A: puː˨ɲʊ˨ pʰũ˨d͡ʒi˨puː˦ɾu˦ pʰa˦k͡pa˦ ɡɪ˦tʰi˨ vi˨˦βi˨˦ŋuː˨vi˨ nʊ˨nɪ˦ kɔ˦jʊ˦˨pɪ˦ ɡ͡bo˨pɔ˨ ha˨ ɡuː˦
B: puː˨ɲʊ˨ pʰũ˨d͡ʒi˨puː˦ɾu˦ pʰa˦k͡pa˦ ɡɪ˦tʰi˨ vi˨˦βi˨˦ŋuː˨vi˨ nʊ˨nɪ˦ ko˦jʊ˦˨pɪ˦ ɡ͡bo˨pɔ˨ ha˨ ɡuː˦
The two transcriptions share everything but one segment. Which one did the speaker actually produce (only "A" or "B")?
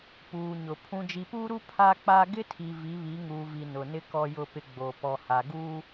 A